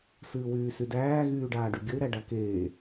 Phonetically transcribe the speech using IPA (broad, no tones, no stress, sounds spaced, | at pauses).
s ɨː w yː s y d æː ɣ yː ɖ aː ɖ y bʲ ə ɪ̯ ɾ æ ɖ a k eː